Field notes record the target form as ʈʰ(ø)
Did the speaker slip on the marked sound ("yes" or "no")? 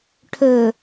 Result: no